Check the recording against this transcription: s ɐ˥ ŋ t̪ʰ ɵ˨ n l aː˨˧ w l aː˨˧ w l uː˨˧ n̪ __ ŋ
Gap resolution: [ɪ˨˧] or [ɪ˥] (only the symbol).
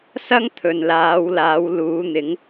ɪ˨˧